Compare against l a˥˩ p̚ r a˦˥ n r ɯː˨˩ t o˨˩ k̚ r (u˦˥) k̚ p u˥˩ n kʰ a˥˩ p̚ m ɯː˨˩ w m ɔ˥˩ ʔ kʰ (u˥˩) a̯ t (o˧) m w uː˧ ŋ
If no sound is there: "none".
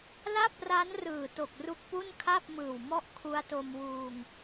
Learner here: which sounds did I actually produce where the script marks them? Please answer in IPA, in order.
u˦˥, u˦˥, o˧

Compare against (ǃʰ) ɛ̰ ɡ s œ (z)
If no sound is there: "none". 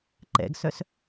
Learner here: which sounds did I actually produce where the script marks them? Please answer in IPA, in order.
ǃ, s

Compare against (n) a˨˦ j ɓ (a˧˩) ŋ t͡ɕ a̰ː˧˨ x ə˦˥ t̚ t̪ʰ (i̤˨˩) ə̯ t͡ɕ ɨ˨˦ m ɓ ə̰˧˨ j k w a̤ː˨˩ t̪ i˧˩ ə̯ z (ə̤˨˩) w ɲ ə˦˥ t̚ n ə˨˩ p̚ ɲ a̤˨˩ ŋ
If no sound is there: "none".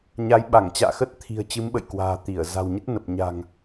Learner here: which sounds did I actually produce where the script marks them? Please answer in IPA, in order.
ɲ, a˧˩, i̤˨˩, a̤˨˩

